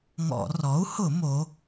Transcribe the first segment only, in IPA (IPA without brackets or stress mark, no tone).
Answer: ŋ